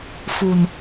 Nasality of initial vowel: oral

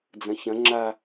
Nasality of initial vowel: nasal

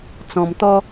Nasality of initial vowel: nasal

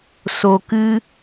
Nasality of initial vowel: oral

